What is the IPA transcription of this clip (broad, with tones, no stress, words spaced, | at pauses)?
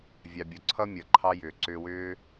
vʲɑ˧bʲo˧ ǀʰʌ˦mʲʌ˨ ǃʰɑ˦jʏː˨ ǀʏː˧wʏː˦